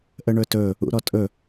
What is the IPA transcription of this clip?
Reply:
ʔəɳɵtɵ | ṵɾɔtʼɵ

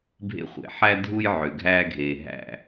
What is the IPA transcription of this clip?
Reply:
bʱḛ˦χʷḛ˨ ħæ˦ dʱu˦j ʕø˨ɡʱæː˦ɡʱeː˨ ɦæ̰˦˨

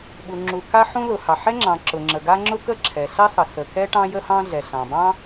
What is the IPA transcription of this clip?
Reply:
ɓu˩ŋ͡ǁu˩ka˥ħũ˥ lʊ˩hɑ˩ ħɛ˥ŋ͡ǁɑ̃˩ ǁʊ˩ŋ͡ǁə˩ɡa˥ ŋ͡ǁʊ˥kə˥ǁʰɛ˩ɬɛ˥ sˤə˩sə˩kɛ˥ ʈɑ̃˥jə˥hɑ̃˥ɮɛ˩ ɬɑ̃˩ bɑ̃˥

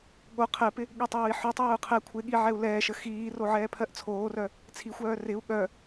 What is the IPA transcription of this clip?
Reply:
ɠo qʰɛpɪ | ɠytˤoːi̯ħœtˤœːu̯ qʰɛ kʷʰɪɠi ʕɛu̯lɛːʃə xiːro ʕɛːpʰɜʔt͡sʰoːrœ | t͡sʰixʷœː rɪu̯ ɠœ

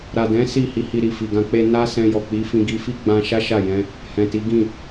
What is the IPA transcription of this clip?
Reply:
ɾa˨dɛ̃˨˦ si˦˨hi˧hi˧ ɾi˨fi˨ɡã˧k͡pe˦ na˦sɛ̃˧ jɔ˨k͡pi˨˦fĩ˧ ɡi˧fi˦ɡ͡bã˧ʃa˦ ʃa˦˨jɛ̃˧ | hɛ̃˨ti˨˦ɡĩ˦˨

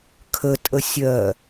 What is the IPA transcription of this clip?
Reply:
kʰətʼə sʲɜ

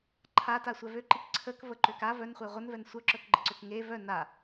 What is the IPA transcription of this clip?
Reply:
ǃʰata sʷɛvøǃik ǀʰək vəǃøka vœnχʷe ʁʷənvɛn sʷœǁœkɡ͡ǃəǀøk ŋe vœ na

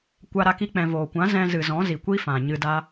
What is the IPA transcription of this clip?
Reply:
kʷa˧ɾa˧ki˧ k͡pɛ̃˨voː˨kʷã˨˦ zɛ̃˧zɨ˨ zɔ̃˨˦zi˨kʷi˦ fã˨ ɲɨ˧da˦

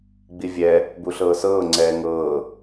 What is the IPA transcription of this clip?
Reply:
ɡ͡bivʲɛ | buɬɤːsɤː ŋ͡ǀɛːŋɤː

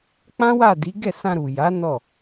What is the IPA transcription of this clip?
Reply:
k͡pã˦wa˦˨di˨˦ ɡɛ˦˨sã˧ɾu˨ja˨˦ nɔ˦˨

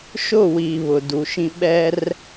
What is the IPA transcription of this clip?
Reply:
ʃʊ˦˨wi˨ βʊ˨du˨ʃĩ˦ ɓɛ˦r

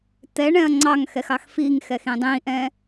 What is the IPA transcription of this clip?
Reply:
t̪ɛɳɛ̃ɐ̯ ŋ͡ǀɑŋxɛxɑx fiŋxɛxĩ dˤĩʔɛ̃

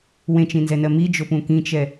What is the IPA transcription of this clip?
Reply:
wẽt͡ʃĩnzɛnɜ mid͡ʒopũ kĩt͡ʃɛ

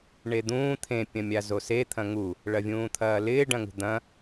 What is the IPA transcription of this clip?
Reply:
ɳed̪ũː t̪ʰẽ pʲɐ̃mʲazose t̪ʰɐ̃ŋu | ɭɐvʲũːt̪ʰɐːlɪː ɖɐ̃ŋṳd̪ɐ̃

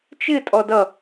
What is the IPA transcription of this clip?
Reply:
t͡ʃɪ tʼɔdʌ

